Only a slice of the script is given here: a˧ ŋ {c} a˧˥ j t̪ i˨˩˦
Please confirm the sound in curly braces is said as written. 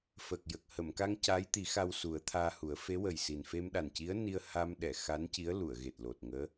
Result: yes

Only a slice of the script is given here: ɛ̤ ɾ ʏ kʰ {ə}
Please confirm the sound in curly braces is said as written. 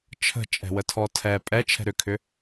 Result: no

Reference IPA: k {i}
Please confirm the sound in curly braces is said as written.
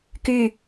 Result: no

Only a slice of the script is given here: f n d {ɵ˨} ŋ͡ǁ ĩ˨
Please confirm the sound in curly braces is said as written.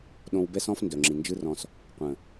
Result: no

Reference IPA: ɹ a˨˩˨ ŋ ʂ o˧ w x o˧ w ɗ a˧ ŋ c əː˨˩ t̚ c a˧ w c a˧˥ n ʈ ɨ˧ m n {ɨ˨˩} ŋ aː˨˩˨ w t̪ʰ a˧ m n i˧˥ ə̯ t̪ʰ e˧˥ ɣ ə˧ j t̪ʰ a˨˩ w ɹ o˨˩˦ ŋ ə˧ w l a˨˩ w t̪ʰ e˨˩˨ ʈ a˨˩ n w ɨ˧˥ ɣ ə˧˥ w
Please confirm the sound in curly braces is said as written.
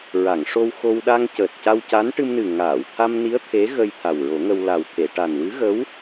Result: yes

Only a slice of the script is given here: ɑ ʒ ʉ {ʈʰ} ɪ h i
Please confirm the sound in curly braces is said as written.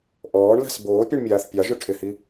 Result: yes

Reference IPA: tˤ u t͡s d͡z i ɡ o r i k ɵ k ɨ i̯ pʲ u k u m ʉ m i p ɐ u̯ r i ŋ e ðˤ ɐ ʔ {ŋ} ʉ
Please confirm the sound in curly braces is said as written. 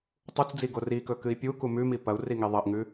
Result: yes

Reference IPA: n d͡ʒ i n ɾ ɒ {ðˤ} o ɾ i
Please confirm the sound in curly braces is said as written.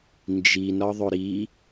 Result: yes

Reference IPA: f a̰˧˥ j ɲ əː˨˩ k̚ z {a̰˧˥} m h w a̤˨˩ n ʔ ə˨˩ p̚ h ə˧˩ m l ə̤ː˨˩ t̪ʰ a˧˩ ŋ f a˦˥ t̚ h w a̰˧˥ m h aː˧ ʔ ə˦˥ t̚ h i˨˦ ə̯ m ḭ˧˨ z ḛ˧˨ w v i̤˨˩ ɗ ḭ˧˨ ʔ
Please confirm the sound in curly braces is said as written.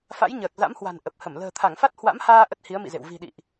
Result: yes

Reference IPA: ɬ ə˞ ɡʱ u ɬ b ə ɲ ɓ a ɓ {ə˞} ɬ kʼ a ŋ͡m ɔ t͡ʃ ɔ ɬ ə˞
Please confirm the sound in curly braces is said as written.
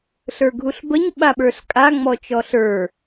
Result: yes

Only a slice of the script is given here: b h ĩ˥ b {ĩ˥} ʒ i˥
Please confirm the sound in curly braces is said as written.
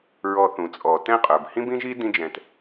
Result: yes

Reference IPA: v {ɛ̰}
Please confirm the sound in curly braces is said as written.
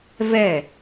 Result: no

